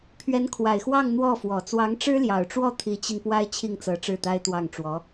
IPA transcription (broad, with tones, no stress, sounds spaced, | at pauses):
pʰ ɥ ɛ˧˥ n kʰ w a˨˩ ɪ̯ x w ɑ˥˧ ŋ n̪ w ɔ˥˩ f w ɔ˨˩ t͡s w ɑ˧˥ ŋ ʈ͡ʂ ɻ̩˥ l j ɑ˨˩ ʊ̯ ʈ͡ʂ w ɔ˥˩ t̪ʰ i˧˥ t͡ɕ i˧ n p w a˥ ɪ̯ t͡ɕʰ i˥˩ ŋ t͡s ɤ˧˥ ʈ͡ʂ ɻ̩˥˩ t̪ a˥ ɪ̯ t̪ w ɑ˥˩ ŋ ʈ͡ʂ w ɔ˧˥